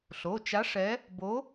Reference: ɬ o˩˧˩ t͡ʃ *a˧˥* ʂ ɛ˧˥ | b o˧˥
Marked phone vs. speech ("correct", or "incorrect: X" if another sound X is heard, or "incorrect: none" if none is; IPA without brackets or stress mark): correct